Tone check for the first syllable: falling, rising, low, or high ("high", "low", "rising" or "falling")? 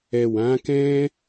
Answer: low